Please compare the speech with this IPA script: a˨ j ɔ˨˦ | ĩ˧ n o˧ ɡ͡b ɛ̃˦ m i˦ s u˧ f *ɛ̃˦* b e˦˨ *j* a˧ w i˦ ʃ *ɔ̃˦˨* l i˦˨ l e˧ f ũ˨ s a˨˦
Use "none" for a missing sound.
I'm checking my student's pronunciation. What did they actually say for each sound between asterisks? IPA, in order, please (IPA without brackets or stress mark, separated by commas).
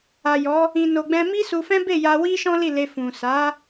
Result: ɛ̃˦, j, ɔ̃˦